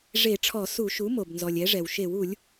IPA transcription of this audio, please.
ʐ e˧˩˧ ʈ͡ʂʰ ɔ˧˩˧ s u˧˩˧ ʃ u˩˥ m o˩ b n z ɔ˩ lʲ ɛ˩˥ ʐ ɛ˩ w ʃ e˧˩˧ w u˧˩˧ lʲ

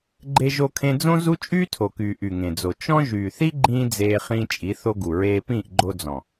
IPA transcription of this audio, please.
ɡ͡ǃ e˧ ʒ o˧ kʰ ẽ˧ d͡z õ˦ z u˦ t͡ʃʼ yː˦ tʰ o˨ k yː˨ ʔ y˨ ŋ ẽ˨ d͡z o˨ t͡ʃ ɔ̃˦ ʒ yː˨ θ i˦ ɡ͡ǃ ĩː˦ d͡z eː˧ χ ĩː˧ t͡ʃʼ i˨˦ θ o˧ ɡ u˨ ɹ eː˧ p ĩː˦˨ ʔ ɡ͡ǃ o˧ d͡z ɔ̃˨

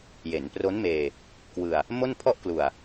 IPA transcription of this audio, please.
j e˩˦ n p r o˦˥ n m eː˧ | k w ɯ˧ a̯ | m o˥˩ n pʰ ɔ˥˩ ʔ k l u˨˩ a̯

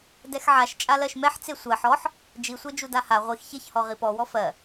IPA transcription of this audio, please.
d ɛ x ʕ a ʃ t͡ʃʼ a l ɜ ʃ m ɛ ħ t͡s e sʷ ɜ ħ ɔ ħ | d͡ʒ i sʷ e d͡ʒ u d a h a ʁʷ i x ç e ç h ɔ ʁ i p ɔ w ɔ f ɜ

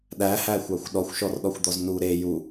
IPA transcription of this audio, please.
ɗ æ h æ xʷ ɑ xʷ ɗ ɔ xʷ ʃ ɔ r ɗ ɔ xʷ d̪ ɔ z n u ɾ e j u

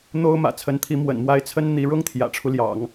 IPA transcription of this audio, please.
n̪ o˥ ʊ̯ m ä̰˨˩ t͡sʰ ə˧˥ n t̪ʰ i˧˥ m w ə̰˨˩ n m w a˧˥ ɪ̯ t͡sʰ ə˥ n n̪ i˧˥ ɻ ʊ˥ ŋ t̪ʰ j ä̰˨˩ ʈ͡ʂʰ u˦ l j ɑ̰˨˩˦ ŋ

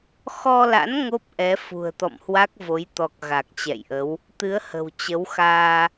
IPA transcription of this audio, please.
x ɔ˧ l a̰˧˥ n ŋ o˦˥ p̚ ʔ ɛ˨˦ f ṳ˨˩ ə̯ t̪ ɔ̰˧˨ m h w a˦˥ k̚ v o˨˦ j t̪ ɔ˨˩ k̚ ɣ a˨˩ k̚ t͡ɕ ɛ̰˧˨ j ʔ ə˨˦ w | t̪ ɨ˨˦ ə̯ h ə̤˨˩ w t͡ɕ ə˨˦ w x aː˧

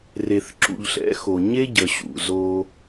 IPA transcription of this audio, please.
r e˨ θ ǁ ṵ˨ ʎ ɬ ɛ̰˨˦ x o˨ ɲ e˦ ɟ ə˨ ɕ ṵ˨ z o˧

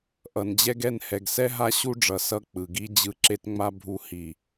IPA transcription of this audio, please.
ʔ ʌ˨ n d͡ʑ ɛ˦ ɡ ɛ˦˨ n h ɛ˨ ɡ s ɛ˦ ɦ a˦ ɕ u˦ ɖ͡ʐ ʌ˨ s ʌ˦ k͡p ɯ˨ ɡ i˦ d͡ʑ ɯ˦ ǁ e˦ t ŋ͡m a˦ bʱ u˦ h i˨

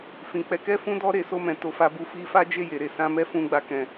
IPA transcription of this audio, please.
f ĩ˨ k͡p ɛ˧ k ɛ˦ f ũ˦ d ɔ˦ ɾ e˧ s o˧ m ɛ̃˨ t o˧ f a˧ b u˧ f i˧ f a˦ d͡ʒ e˦˨ j e˨ ɾ e˨ s ã˧ m ɛ˦ f ũ˧ ɡ͡b a˧ k ɛ̃˨

